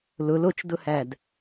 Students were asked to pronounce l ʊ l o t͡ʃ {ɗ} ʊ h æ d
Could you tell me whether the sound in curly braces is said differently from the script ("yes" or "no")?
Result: yes